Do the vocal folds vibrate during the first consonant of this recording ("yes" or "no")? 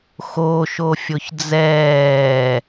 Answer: no